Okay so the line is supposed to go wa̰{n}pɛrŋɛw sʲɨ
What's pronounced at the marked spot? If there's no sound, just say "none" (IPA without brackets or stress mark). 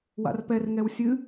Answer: r